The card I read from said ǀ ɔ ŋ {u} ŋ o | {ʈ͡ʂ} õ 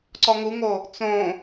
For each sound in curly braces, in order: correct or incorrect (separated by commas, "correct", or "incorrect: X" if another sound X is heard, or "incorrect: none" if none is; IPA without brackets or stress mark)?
correct, incorrect: t͡s